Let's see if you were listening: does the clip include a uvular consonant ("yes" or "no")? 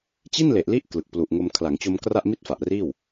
no